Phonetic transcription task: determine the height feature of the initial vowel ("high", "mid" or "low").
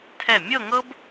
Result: mid